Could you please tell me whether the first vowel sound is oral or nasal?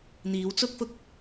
oral